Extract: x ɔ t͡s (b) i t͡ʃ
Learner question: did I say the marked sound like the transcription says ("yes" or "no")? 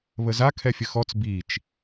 yes